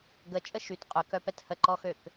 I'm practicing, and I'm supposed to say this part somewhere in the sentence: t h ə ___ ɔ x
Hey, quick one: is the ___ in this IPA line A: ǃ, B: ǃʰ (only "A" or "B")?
A